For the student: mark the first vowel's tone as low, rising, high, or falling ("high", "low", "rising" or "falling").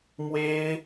high